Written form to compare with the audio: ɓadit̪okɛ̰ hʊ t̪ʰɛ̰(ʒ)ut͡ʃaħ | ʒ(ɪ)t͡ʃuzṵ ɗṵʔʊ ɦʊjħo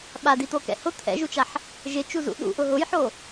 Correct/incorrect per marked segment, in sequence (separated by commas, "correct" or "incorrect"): correct, correct